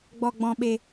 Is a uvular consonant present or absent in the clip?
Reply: absent